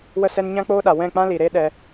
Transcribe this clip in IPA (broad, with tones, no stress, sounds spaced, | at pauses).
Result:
w ə˧ s ɛ˧ n ɲ ã˦ k͡p oː˦ ɗ a˨ w ɛ̃˦˨ k͡p ã˦ l i˨ ɾ e˦ ɗ ɛ˧